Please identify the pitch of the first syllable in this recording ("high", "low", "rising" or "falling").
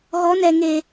rising